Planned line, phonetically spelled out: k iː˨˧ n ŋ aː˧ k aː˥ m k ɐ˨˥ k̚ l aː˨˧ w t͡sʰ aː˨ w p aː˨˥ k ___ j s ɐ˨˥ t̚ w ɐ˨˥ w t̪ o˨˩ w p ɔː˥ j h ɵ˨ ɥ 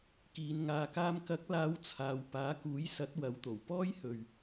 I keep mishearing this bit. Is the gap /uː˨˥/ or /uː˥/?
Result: uː˨˥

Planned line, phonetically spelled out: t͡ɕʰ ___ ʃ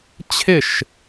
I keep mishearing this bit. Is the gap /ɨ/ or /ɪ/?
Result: ɪ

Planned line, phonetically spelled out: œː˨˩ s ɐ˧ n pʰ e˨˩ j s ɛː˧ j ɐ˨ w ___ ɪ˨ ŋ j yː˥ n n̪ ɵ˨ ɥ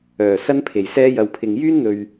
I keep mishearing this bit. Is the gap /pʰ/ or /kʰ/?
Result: pʰ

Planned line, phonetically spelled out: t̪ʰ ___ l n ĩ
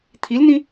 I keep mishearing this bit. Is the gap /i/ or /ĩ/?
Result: i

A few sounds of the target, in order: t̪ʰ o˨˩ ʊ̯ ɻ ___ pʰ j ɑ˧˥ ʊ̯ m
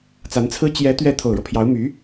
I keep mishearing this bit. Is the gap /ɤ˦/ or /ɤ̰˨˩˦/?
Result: ɤ˦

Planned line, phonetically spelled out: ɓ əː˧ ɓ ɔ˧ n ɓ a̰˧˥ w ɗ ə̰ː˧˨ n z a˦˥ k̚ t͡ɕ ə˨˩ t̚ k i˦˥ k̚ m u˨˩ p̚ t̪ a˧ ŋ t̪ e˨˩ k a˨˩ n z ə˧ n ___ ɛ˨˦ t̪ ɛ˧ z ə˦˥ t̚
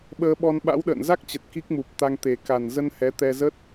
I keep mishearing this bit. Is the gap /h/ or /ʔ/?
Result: h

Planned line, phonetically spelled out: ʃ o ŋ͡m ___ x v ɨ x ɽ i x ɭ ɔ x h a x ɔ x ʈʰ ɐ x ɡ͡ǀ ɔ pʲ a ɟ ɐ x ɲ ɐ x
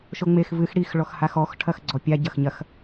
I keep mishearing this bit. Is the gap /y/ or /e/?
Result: e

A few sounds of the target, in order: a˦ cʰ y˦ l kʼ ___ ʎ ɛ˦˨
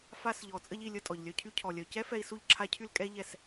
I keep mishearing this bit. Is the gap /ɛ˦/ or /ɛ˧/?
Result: ɛ˦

